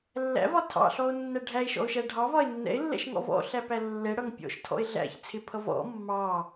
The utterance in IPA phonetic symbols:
lː æ̰ v ɒ tʰ ɑ̰ ɬ ɔ o̯ nː æ ɖʱ æ e̯ ʃ ɔ̰ o̯ ʃ æ ɖʱ ɑ v ɒ e̯ nː ɛ̰ e̯ lː ɛ̰ ʃ ŋ ɔ̰ v ɔ̰ ɬ æ p æ lː ɛ ɽ ʌ ŋ pʲ ɔ̰ ʃ tʰ ɔ̰ e̯ ɮ æ̰ ç t͡sʰ ɪ pʰ ʌ v ɔ̰ mː ɑ

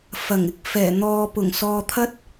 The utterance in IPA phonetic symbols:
f ɐ˨˩ ŋ ɪ˨ k̚ f ɛː˨˩ n̪ ɔː˨ p ʊ˨˩ ŋ s ɔː˧ t̪ʰ ɐ˥ t̚

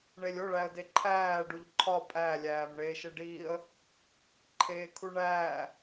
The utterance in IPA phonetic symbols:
ɳ e lʲ o ɭ æ ə̯ d e ǃʰ æː ɖ u ʎ ǃʰ ɒ pʼ æ lʲ æː m ɳ eː ʃ e ɖ iː ə̯ | ǃʰ eː kʰ u ɳ æː

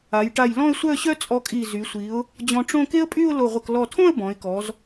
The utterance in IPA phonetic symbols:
a˩˧ j ʈ a˧˩ j l ɔ̃˥˧ ə̯ sʷ œ˥˧ ɕ œ˥ t͡sʼ ɔ˧ kʼ i˧˩ z y˩˧ sʷ i˩˧ ʊ̯ | d͡ʑ ɔ̃˧ ʈ͡ʂ õ˥˧ k e˥ ə̯ pʼ y˥˧ ʊ̯ l o˧˩ ʁʷ ə˧˩ k l ɔ˧˩ tʰ õ˥˧ ə̯ b ɔ̃˩˧ ɪ̯ k ɔ˩˧ z

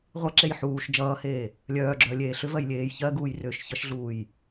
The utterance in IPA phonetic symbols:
ʁʷ ʌ ǁ e j ħ uː ʃ d͡ʒ ʌː h eː | lʲ œː ɡ͡ǁ œː lʲ eː ɬ ʏ v ɜ j lʲ eː j ç ɜ ɡ uː j r ʏː ʃ ç ʌ ʃ ɮ uː j

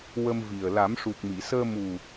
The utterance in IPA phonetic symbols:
w ə˧ m v i˨˩ ə̯ l a˨˩˦ m ʂ u˨˩ k̚ m i˨˩˨ s əː˧ m u˨˩

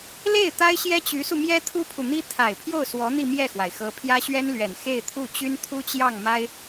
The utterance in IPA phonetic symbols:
l e˥˩ ɪ̯ t̪ a˥ ɪ̯ ɕ j ɛ˥ t͡ɕ y˧˥ s u˧ m j ɛ˥ t̪ʰ u˥ pʰ u˨ n̪ i˥ t̪ʰ a˨˩ ɪ̯ pʰ j o˥˩ ʊ̯ s w ɔ˧˥ n̪ i˥˧ m j ɛ˥˩ x w a˩ ɪ̯ x ɤ˧˥ pʰ j ä˥ ɕ ɥ ɛ˥ n l ɥ ɛ˨˩ n x e˥˧ ɪ̯ t̪ʰ u˥˩ t͡ɕ y˥ n t̪ʰ u˥ t͡ɕ j ɑ˥˩ ŋ m a˥ ɪ̯

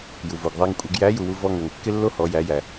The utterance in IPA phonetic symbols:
j u˩ v o˩ ɡ ðˤ æ˧ ŋ kʷʼ e˩˧ ɡ j æ˧˥ j u˩ w u˧ v ɔ˧ ŋ ø˩ ŋ kː ɪ˥ lː o˥ h ɔ˩˧ j æ˩˧ j æ˩

